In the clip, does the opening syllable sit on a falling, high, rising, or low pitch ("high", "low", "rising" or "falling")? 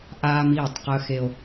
high